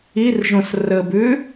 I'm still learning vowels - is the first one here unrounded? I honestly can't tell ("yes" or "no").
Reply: yes